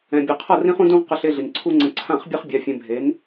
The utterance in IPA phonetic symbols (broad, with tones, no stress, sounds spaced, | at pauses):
ɛ̃˨ bʲ ʌ˨ qʰ ʌ˦˨ r ĩ˦ χ ũ˦ d ũ˦ ʁ q ə˧ ɬ e˧ ɮ i˨ n ǀʰ u˦ ŋ͡ǀ ə̃˧ ǀʰ ã˦˨ χ bʲ e˦ χ bʲ a˧ fʲ ɛ̃˧ bʱ e˨˦ n